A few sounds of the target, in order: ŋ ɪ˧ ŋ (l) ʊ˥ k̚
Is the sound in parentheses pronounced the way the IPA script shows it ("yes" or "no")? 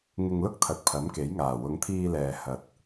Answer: yes